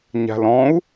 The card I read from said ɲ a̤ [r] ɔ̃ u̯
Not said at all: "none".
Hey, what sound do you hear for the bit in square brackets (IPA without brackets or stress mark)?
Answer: l